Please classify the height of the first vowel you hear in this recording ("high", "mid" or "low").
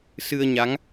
high